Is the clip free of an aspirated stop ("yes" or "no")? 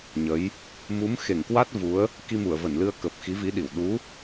yes